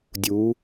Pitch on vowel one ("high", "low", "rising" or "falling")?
rising